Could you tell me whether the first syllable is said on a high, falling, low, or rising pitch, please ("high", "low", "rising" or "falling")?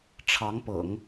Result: rising